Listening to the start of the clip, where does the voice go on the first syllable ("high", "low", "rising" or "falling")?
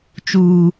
low